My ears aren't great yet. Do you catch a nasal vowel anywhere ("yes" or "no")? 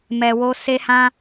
yes